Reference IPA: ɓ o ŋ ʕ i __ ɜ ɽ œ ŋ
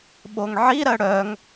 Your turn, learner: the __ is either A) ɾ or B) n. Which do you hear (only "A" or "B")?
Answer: A